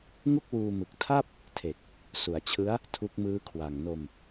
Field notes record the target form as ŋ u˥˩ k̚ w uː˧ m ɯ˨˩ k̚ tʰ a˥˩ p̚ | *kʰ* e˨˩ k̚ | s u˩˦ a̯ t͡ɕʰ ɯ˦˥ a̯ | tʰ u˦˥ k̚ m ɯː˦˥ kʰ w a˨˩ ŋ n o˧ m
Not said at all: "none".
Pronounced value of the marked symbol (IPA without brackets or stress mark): tʰ